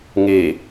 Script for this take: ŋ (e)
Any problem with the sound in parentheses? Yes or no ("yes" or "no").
no